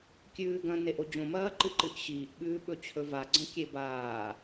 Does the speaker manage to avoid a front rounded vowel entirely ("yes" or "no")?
yes